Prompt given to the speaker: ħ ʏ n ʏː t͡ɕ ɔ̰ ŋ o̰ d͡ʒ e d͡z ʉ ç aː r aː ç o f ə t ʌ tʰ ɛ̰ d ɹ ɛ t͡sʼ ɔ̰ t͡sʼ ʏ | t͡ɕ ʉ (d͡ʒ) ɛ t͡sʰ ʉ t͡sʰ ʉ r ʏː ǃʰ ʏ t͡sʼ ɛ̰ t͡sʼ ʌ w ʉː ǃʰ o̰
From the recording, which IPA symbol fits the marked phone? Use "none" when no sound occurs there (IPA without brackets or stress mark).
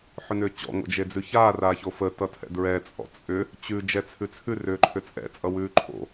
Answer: d͡ʒ